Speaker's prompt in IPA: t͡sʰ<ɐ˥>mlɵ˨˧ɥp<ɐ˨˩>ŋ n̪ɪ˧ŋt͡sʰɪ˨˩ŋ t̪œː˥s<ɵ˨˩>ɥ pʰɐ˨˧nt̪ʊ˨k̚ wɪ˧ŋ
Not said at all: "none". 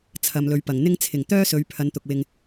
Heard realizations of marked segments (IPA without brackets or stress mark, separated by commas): ɐ˨, ɐ˨˩, ɵ˨˧